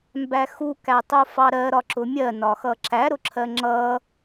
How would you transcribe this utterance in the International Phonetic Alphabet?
m b æ x u k æ tˤ u f ɑ ɾ ɜ ɾ ɒ ǁ ʊ mʲ ɜ n ɒ x ʌ ǁ æ ɾ ʊ ǁʰ ɜ ŋ͡ǁ ʌ

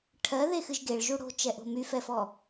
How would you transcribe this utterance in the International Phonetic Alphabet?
ʈʰ ɜ ð e x ɨ ʒ ɡ e ɭ ʒ u ɽ o̤ t͡ʃ ɛ ʔ o̤ m y f ɛ f ɔ

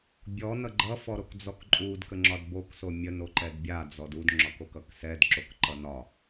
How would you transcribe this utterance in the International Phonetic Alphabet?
bʲ ɔ n ʌ ɡ͡ǃ ʌ f ɔ ɾ o k d͡z ɔ k ǃʼ u d k ə ŋ͡ǁ ɒ d b o k s o mʲ ə n o ǃ ɛ d bʲ a d͡z ɔ d u d ŋ͡ǁ ɒ k o k ʌ k s ɛ d ǁ o k ǃ ʌ n ɒ

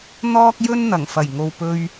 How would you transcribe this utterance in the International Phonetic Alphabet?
n̪ ɔː˥ k̚ j ɵ˥ n n̪ ɐ˨˩ ŋ f ɐ˨˩ j ŋ o˨ w p ɵ˧ ɥ

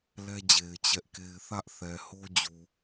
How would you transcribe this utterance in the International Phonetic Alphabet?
l ɛ˦ d͡ʑ e˨ ɪ̯ t͡ɕ ɛ˦ ʔ k e˦ ɪ̯ θ ä˦ ʔ θ ɛ˨ h o˦ d͡ʑ u˨

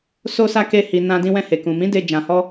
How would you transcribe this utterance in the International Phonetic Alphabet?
s o˧ s a˧ k e˧ h i˨ n ã˧ d ĩ˧ w ɛ̃˧ h e˨ k ũ˨ m ĩ˨˦ d e˧ d͡ʒ ã˧ h ɔ˦

